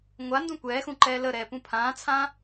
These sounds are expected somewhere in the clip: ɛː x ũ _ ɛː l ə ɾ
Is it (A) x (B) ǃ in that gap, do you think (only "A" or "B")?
B